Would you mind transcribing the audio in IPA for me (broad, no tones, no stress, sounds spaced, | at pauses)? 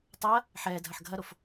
tˤ ɐ | ħ ɛ dʱ ɐ ħ ɡʱ ɐ ɾ o f